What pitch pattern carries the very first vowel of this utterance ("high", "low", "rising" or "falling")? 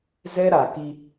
high